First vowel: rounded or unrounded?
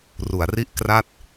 rounded